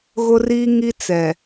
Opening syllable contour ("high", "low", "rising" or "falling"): high